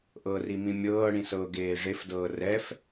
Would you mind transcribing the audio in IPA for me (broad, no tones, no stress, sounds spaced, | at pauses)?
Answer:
ʔ ɤ r i m ĩ mʲ ɤː ɽ ĩ s ɤ ɡ eː ʐ e f d ɤː r ɛ f